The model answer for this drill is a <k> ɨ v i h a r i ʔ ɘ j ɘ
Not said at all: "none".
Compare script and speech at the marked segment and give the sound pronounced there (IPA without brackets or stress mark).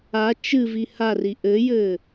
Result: t͡ʃ